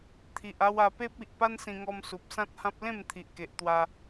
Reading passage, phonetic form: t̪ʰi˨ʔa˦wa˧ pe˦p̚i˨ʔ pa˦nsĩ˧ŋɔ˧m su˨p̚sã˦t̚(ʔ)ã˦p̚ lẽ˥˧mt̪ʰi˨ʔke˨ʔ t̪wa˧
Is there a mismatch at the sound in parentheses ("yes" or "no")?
yes